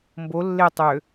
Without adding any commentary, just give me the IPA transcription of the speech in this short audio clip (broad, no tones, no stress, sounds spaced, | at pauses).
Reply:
m b o lː e tˤ ø